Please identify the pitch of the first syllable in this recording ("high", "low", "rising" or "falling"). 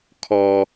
high